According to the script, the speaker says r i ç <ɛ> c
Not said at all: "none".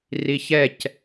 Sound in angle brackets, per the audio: ɛ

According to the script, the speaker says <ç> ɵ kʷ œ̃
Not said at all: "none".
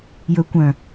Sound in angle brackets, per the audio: j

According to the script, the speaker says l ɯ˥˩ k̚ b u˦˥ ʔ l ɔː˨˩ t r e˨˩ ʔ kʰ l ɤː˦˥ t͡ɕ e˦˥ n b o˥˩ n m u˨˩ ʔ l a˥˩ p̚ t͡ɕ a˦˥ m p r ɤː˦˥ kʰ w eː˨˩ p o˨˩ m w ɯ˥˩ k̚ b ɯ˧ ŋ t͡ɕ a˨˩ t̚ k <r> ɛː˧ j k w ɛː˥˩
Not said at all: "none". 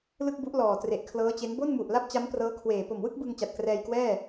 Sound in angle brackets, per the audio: r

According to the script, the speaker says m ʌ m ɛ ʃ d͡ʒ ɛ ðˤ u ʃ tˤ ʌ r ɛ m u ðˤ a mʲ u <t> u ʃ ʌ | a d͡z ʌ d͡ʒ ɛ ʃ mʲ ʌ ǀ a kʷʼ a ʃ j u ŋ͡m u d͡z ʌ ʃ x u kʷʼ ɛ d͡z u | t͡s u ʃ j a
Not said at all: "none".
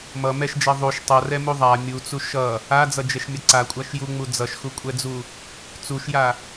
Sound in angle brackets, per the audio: t͡s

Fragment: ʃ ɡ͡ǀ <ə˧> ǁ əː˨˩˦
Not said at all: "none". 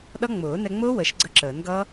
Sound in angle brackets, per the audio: ə˧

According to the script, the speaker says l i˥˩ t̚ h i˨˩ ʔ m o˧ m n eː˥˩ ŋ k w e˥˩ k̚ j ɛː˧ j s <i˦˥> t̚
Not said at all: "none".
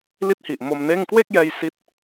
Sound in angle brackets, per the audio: i˦˥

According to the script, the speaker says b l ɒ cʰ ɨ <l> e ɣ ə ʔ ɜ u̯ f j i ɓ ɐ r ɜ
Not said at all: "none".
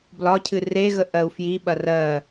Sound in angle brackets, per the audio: r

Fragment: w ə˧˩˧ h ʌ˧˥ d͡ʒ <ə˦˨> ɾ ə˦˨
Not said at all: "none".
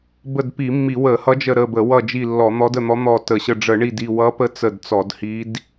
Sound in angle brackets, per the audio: ə˦˨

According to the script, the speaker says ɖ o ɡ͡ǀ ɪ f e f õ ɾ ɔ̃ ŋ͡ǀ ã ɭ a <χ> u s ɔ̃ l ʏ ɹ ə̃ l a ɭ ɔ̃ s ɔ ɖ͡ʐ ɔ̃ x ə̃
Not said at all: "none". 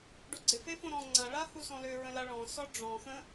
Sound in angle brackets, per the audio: h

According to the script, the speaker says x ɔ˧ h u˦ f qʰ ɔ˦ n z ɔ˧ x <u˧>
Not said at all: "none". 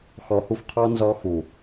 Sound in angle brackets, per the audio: u˨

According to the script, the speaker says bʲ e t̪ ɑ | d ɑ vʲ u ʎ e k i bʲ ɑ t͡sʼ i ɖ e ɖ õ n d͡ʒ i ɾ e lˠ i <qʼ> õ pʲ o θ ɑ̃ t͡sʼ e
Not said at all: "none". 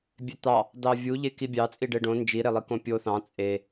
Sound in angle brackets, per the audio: k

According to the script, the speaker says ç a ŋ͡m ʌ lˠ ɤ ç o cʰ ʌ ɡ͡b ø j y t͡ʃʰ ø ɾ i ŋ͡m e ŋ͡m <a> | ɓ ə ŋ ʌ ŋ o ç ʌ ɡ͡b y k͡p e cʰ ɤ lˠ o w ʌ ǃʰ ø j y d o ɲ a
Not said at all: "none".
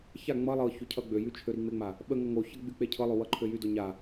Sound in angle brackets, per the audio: a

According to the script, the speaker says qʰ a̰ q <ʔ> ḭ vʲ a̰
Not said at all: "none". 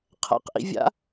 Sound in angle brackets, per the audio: ʔ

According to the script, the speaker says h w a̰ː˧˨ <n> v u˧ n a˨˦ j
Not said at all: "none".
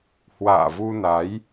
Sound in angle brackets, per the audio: none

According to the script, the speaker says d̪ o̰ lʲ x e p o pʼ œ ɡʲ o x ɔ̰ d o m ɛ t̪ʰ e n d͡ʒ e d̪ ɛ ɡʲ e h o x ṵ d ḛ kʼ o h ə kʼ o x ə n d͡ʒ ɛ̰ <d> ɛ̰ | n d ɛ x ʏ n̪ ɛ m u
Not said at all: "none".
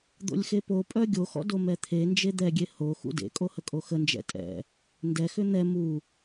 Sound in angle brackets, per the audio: tʼ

